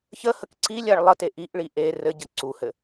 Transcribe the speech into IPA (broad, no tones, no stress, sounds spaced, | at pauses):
ç ə h ə k ǀ i lʲ a ɭ lˠ ə t e ʔ i ʔ ɭ i ʔ e r ɘ ɟ ə ǀ u h ɘ